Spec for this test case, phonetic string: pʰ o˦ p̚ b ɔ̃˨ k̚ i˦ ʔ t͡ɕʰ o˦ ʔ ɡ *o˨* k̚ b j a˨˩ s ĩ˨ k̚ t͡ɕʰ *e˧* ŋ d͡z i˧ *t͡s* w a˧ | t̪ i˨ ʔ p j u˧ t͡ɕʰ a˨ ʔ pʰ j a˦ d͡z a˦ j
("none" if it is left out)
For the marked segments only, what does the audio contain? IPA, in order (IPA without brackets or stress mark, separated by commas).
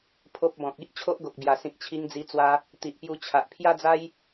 o˨, i˧, t͡s